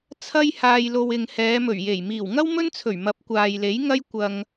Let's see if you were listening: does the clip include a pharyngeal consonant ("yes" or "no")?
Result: no